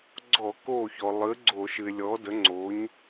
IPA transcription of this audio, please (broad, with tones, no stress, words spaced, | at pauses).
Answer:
ɡ͡ǀɔ˧˩˧ko˧˩çɔ˩ lˠɨ˩˥ ɡ͡ǀo˧˩˧ʃɨ˩ɪ̯lʲɔ˩˥də˩˥ ŋ͡ǀo˩˥ɲ